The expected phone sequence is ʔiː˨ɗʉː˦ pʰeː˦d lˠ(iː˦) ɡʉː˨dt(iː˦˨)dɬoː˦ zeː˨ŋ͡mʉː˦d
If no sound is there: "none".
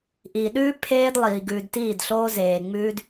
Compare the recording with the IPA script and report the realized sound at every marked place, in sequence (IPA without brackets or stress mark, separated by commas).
iː˨, iː˦˨